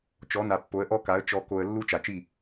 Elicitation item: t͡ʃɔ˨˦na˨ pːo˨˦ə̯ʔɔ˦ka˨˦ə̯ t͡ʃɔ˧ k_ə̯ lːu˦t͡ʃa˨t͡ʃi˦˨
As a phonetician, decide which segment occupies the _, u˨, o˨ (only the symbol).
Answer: o˨